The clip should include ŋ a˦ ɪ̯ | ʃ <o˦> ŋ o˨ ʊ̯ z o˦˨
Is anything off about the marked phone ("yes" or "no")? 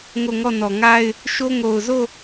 no